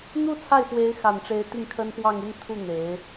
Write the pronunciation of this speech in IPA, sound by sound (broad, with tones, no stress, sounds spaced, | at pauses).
n̪ u˥˧ t͡sʰ a˥˩ ɪ̯ f w e˧˥ ɪ̯ x a˨˩ n ʈ͡ʂ e˧˥ ɪ̯ t̪ i˥˩ ŋ kʰ ə˥ n p w ɑ˥˧ ŋ i˥˧ n t̪ʰ u˥˩ n̪ e˧˥ ɪ̯